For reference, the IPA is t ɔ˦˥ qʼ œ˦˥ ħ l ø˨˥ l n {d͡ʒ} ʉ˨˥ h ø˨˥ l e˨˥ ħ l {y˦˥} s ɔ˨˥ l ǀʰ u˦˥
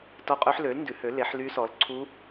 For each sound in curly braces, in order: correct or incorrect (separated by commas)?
incorrect, correct